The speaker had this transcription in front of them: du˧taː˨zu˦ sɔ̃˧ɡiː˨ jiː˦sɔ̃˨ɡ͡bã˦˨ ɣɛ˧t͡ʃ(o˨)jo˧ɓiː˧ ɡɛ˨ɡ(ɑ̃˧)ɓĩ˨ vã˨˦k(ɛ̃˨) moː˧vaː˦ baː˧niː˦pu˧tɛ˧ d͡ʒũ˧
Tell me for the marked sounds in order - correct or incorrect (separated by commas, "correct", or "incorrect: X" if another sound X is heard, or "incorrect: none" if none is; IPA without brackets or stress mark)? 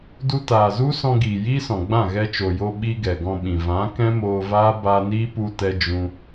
correct, incorrect: ɔ̃˧, incorrect: ɛ̃˦